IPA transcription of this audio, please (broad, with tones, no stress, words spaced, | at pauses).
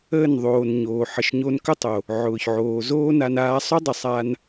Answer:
əː˦˨nðˤoː˨n ɲoː˨ ħə˨ʃɲo˧nkʏ˦tˤo˨ | ʕʊː˨çʕoː˨zoː˦na˧n aː˧sˤʏ˦dˤə˨ sˤa˧n